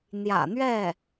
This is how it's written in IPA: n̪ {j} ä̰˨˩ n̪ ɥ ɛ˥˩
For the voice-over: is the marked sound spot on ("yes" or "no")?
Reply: yes